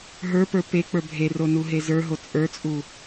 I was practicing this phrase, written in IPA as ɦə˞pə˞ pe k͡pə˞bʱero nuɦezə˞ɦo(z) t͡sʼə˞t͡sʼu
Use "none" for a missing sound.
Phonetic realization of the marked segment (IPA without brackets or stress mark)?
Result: none